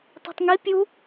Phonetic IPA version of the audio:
tˤ i̤ tˤ ŋ i pʲ u

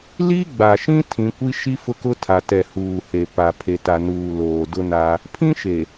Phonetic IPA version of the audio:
l i˦ ɡ͡b a˨ ʃ ĩ˦ tʰ ĩ˨˦ kʷ i˦ ʃ i˦ f ʊ˦ k ʊ˦ tʰ a˨ t ɛ˨ h uː˨ h e˨ p a˨ pʰ e˨ t a˨ n uː˨ l oː˨ d ʊ˦ n a˦ | pʰ ĩ˦ ʃ e˨

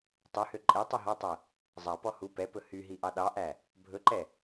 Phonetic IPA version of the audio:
tˤ y h ø ǃʼ e tˤ u ɦ ɔ tˤ ɛ | zˤ ɑ p ɔ h u p ɛ p ɵ h y ɦ i ʔ ɑ ɗ ɑ ʔ æ | bʱ ɵ ǃ ɛ

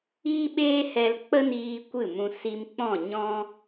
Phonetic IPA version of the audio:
iː˦ ɓ eː˦ h ɛ˧ l k͡p ə˦ n iː˧ kʷ ɨ˦˨ m ũ˧ s i˧ m k͡p ɔ̃˦˨ ɲ ɔ̃˦

